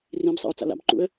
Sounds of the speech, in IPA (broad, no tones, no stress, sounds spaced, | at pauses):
r ĩ b sˤ a̰ ʊ̯ t͡s a̰ l a̰ b ǃ ṵ ə̯